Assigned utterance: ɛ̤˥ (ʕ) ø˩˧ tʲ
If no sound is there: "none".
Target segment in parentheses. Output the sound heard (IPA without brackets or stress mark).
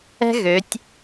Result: ɣ